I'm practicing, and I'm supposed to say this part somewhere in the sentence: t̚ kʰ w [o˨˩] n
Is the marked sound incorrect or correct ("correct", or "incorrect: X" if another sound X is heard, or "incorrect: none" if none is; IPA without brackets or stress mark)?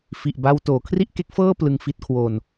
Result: incorrect: o˧